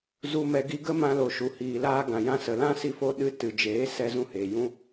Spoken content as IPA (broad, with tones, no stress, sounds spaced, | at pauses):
z u˨ m ɛ˨ ɡ i˧ ɡ ə˦ m ã˧ l o˨ ʃ u˨ h iː˨ l aː˧ ɡ ã˨ j ã˧ s ə˨ l ã˦ s i˧ f o˧ ɗ ɨ˦ t ɨ˨ d͡ʒ eː˨˦ s ɛ˧ z ũ˧ h eː˨ j ũ˦